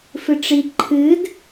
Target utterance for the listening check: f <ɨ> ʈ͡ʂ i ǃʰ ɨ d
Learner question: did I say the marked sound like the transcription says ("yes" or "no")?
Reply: yes